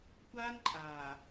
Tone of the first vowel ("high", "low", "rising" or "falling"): high